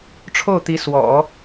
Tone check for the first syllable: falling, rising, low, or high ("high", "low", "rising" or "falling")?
falling